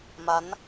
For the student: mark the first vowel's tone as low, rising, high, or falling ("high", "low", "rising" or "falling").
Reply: rising